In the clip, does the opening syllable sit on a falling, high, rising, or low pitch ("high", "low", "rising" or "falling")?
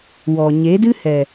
low